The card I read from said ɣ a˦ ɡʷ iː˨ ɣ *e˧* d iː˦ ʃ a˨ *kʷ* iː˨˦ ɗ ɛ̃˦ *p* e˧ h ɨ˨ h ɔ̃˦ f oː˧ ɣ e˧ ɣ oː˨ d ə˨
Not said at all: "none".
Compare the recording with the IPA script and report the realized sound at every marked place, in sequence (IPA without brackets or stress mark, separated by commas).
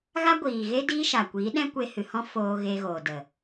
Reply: e˦, kʷ, kʷ